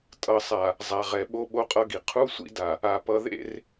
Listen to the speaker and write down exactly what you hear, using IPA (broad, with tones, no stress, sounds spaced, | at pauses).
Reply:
tʼ ʌ˨ sˤ a˨ | zˤ a˨ ʁ ɛ˨ ɓ o˦ ɓ o˦ qʼ ʌ˦ ɡ i˨ qʰ u˦ sʷ ḭ˦ d a˨ | a˨ p ʌ˨ ð ḛ˦˨ r